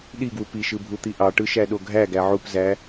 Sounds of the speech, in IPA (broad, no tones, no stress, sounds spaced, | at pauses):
ɗ i ɡ w u p i ʃ ɯ bʱ u t̪ i ʔ ɑ ʈ ɯ ʃ æ ɗ o ɡʱ æ ɡ æ ʕ u p z æ